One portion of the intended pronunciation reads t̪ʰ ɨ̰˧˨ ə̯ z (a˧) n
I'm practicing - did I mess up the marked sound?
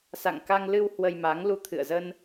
yes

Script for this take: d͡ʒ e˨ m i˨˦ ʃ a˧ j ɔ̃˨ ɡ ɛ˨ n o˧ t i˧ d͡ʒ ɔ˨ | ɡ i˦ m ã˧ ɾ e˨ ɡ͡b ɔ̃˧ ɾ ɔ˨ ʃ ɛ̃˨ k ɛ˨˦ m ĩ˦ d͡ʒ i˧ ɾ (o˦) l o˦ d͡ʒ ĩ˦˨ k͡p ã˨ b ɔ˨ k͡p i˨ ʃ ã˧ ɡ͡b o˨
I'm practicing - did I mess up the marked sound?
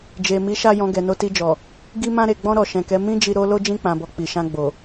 no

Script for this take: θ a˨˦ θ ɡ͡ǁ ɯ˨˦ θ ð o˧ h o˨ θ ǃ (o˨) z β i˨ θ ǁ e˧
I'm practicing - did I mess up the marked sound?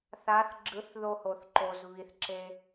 no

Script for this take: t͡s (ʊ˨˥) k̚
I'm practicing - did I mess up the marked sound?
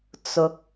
no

